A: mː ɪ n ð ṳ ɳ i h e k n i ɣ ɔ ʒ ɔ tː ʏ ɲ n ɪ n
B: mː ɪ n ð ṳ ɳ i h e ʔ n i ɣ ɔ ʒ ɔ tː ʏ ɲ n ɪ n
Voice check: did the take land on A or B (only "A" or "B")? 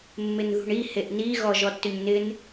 B